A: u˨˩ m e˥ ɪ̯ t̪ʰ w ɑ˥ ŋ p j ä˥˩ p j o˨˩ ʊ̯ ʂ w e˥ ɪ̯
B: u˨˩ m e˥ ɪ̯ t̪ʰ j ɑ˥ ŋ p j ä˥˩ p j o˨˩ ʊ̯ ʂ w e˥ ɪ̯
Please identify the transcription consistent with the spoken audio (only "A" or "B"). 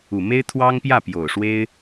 A